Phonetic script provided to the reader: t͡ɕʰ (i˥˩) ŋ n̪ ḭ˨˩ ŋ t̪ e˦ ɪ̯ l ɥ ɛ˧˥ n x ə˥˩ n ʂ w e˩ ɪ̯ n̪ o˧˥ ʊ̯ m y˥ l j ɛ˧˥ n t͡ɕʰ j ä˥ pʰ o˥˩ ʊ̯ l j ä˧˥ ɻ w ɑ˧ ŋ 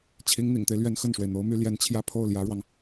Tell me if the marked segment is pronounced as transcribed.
no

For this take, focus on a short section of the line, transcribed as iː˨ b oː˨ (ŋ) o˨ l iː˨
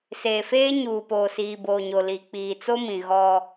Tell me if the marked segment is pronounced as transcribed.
no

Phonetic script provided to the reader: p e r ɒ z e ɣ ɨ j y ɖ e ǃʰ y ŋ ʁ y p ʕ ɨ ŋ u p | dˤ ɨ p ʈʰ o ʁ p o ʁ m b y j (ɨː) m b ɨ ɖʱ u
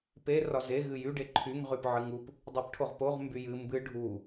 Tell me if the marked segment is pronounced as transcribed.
no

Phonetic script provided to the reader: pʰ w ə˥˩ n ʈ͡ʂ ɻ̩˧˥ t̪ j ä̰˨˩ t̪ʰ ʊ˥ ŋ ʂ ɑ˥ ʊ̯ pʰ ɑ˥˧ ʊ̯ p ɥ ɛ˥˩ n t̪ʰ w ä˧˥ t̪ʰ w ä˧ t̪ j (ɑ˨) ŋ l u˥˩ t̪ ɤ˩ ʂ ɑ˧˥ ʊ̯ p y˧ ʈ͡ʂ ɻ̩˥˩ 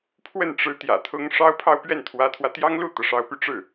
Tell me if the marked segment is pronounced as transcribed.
no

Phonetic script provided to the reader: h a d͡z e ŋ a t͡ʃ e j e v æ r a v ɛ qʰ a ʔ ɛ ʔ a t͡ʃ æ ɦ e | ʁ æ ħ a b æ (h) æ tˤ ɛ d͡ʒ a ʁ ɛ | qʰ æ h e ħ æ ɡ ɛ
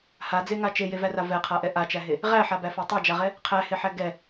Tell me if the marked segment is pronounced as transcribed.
no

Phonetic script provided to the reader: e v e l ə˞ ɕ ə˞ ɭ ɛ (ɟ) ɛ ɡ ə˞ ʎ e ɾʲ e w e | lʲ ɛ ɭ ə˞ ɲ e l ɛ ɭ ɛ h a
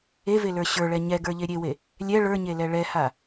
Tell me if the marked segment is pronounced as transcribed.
no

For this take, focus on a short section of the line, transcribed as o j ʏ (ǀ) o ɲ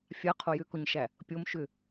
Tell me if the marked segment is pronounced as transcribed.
no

